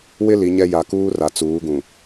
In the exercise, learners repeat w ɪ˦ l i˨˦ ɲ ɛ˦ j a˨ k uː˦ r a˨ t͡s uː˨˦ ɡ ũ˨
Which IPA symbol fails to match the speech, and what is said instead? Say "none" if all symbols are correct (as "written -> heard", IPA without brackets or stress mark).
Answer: none